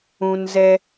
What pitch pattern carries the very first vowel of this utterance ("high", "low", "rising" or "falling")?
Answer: low